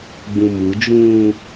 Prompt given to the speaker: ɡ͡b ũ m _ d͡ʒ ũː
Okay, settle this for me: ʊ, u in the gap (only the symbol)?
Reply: u